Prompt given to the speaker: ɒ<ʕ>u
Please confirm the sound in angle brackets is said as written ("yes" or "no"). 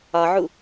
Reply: yes